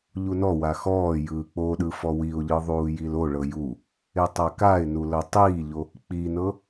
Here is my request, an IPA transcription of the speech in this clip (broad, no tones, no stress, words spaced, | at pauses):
ʎunɔwa xɔː jɯːk͡poɗɯ fɔwiʊ̯ʎɯ ðˤuːjiloɭɤ ju | etˤakaɪ̯nu lɤtˤiːʎo | k͡pinɤ